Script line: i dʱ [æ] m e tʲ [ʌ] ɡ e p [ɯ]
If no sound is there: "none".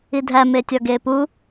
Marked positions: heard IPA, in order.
æ, ɒ, u

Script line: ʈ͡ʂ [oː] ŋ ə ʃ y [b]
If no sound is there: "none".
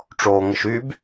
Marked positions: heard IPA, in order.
oː, b

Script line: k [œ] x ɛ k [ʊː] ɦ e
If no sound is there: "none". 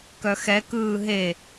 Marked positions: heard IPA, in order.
œ, ɯː

